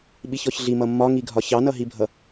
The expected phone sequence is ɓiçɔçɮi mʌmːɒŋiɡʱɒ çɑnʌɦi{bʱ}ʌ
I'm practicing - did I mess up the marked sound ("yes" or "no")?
no